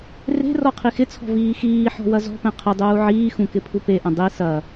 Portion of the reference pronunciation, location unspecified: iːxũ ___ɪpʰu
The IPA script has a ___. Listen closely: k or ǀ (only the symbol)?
k